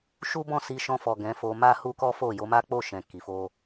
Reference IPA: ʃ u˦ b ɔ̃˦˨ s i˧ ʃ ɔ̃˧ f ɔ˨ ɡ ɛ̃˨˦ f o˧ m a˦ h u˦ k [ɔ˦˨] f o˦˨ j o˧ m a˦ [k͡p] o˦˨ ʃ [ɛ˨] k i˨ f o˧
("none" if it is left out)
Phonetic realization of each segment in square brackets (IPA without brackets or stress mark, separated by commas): ɔ˦, k͡p, ɛ̃˨